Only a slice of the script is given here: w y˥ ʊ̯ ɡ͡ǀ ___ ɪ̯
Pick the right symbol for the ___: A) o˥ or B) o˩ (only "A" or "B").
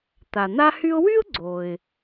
B